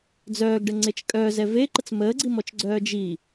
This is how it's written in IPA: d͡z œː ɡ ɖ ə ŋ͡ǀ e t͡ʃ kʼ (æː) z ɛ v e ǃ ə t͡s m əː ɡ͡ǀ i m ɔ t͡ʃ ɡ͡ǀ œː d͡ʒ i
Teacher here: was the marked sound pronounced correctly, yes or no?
no